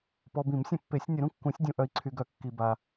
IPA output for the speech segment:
p ɔ˨ b ĩ˨˩˦ m sʲ ə̃˨˩˦ pː e˨˩˦ sʲ nʲ ə˨˩˦ ɾ ũ˨ kː ũ˨˩˦ sʲ dʲ ũ˨ ʔ œ˨ i̯ ǀʰ y˨ ɡ œ˨˩˦ kː i˨ b a˨

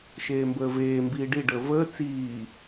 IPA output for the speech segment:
ʃ eː m b əː v eː m b iː ɖ i ɖ əː v əː t͡s iː

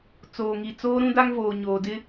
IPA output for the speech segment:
t͡s oː˨ ŋ i˨ t͡s oː˦ ɾ ũ˦ d a˦ ŋ v oː˨ ɲ oː˨ d ɪ˦

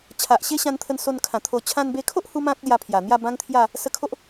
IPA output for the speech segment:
t͡ɕʰ a˨ ʔ ɕ e˦ ɕ ã˧ n t̪ʰ ə˧ n s o˧ n kʰ ã˨˩ t̪ʰ o˧ t͡ɕʰ ã˧ n b e˧ kʰ o˦ ʔ h u˦ m ã˦ k̚ l j a˧ pʰ j a˨˩ n̪ j a˥˧ b ã˦ ŋ t̪ʰ j a˥˧ | s ə˧ kʰ o˦ ʔ

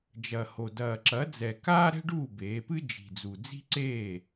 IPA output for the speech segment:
d͡ʒ ɐ˨˩ h o˨˩ d ɐː˨˩ ǁ ɐ˩˥ d͡z ɛ˨˩ k aː˥ ɾ ɛ̤˥ ɖ uː˥˩ b eː˩˥ p ɨ˥ d͡ʒ i̤˨˩ d͡z u˨˩ d͡z i̤˥ ǀ eː˥˩

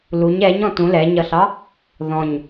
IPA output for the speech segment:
l u ɲ ɛ ɲ ɔ̃ t ũ l ɛ ɲ ʌ ɬ ɑ | ð ɔ̃ ɲ

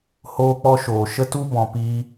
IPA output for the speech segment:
h oː˦ k͡p ɔ˦ ʃ oː˨ ʃ ə˦ t u˦ b ɔ̃˨ p iː˧

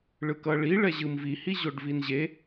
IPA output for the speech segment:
ɭ ɯ k ʌ ɭ i ɭ ɛ ʑ ɯ m v i h i ʑ o ɖ v i n ʑ e

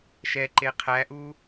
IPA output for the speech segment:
ʃ ɛ ǃ e qʰ æ ʔ u

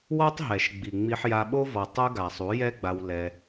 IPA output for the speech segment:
w ɔ˦ tˤ ɦ ɛ˨ ʃ ɡ͡b i˨ ŋ͡m i˧ ħ j a˧ ɓ o˦ v ɔ˨ tˤ u˦ ɡ a˨ sˤ u˨˦ j ɛ˦ ɡ͡b a˧ w l ɛ˧

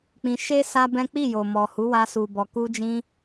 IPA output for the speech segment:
k͡p ĩ˧ ʃ e˦ s a˦ b ɛ̃˦ k͡p i˦˨ j o˨ m ɔ˨ h u˨˦ w a˧ s u˨ b ɔ˨ k u˧ d͡ʒ ĩ˧

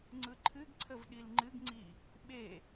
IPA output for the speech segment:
ŋ͡ǀ ɯ ǃʰ ɨ ɡ ǀʰ ə v ɗ i l ŋ͡ǃ ɨ ɡ ŋ͡ǀ i | ɓ e

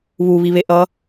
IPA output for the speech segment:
β u β i β e ʔ ʌ

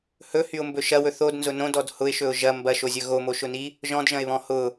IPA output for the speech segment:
h ɵ h y ʊ̯ m b ɵ ʃ ɐ w ɵ θ o d n z ʊ n õ d ɔ d h ʊ ɪ̯ ʃ ɵ ʊ̯ ʒ ɐ m b ɐ ʃ o zʲ ɵ ɣ o m o ʃ ʊ n i | ʒ ɔ̃ d ʒ ɐ̃ ɪ̯ β ɔ̃ h ʊ

